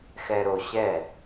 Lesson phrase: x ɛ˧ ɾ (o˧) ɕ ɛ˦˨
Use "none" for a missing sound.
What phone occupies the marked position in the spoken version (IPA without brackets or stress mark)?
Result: o˧